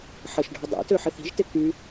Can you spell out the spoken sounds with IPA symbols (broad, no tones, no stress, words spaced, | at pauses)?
ħəʃɖʱʌ dˤḛtøħɪθ i̤ʒtɪ ky